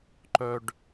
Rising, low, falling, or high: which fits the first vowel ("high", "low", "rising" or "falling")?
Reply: low